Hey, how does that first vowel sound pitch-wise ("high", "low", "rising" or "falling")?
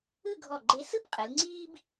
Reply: falling